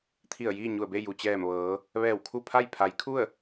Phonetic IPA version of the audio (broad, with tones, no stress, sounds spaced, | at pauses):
t̪ʰ i˧˩ ə̯ j iː˥˨ ɲ u˧˩ ə̯ b e˥˨ j u˩ t͡ɕ ɛː˧˩ m ʋ ɤː˩˧ | ʋ ɛː˧˩ w kʰ u˥˨ pʰ a˥˨ j pʰ a˩˧ j kʰ u˥˨ ə̯